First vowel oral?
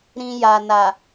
no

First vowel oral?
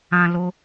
no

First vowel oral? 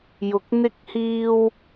yes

